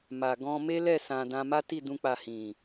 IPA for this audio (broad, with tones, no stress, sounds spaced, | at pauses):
m a˨ ɡ ɔ̃˧ m e˦ l ɛ˦˨ s ã˨ d ã˧ m a˦ t i˦˨ d ũ˧ k͡p a˨ h ĩ˨